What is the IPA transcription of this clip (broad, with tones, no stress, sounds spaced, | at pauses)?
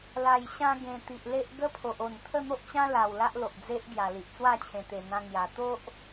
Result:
l a˨˩ j ɕ ã˧ ɡ ẽ˨˩ t̪ i˨ ʔ l e˦ ʔ ɡ ə˦ pʰ o˨ ʔ o˨˩ n t̪ʰ ə˥˧ n̪ o˦ ʔ t͡ɕ ã˦ l a˨˩ w l a˦ ʔ l o˨ ʔ d͡z e˦ ʔ ɡ j a˨˩ l i˨ ʔ t͡s w a˥˧ t͡ɕʰ ẽ˨˩ t̪ e˨˩ n̪ ã˧ ŋ j a˨˩ t̪ o˦ ʔ